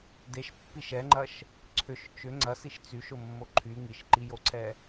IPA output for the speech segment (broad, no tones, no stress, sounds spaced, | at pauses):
d e ʃ pː i ʃ ɛ ŋ͡ǃ ɐ ʃ | ǀʰ ʏ ʃ t͡ʃ ʏ ŋ͡ǀ ɐ s i ʃ t͡s y ʃ ʊ mː o ǃʰ y ŋ i ʃ ǃ i j o ǀʰ ɛ